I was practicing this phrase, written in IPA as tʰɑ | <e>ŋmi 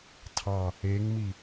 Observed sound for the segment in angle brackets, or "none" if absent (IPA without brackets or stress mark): e